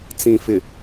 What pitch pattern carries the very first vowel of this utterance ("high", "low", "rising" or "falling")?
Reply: low